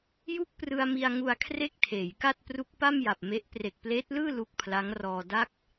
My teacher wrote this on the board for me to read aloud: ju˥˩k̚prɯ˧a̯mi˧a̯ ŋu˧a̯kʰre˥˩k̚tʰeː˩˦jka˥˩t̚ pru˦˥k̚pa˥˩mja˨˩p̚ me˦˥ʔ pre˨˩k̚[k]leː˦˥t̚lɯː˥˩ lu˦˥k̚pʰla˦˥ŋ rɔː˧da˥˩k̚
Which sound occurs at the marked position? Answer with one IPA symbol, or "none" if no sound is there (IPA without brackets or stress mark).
p